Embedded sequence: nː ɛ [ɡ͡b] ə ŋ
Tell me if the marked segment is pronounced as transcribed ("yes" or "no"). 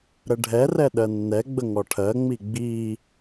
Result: yes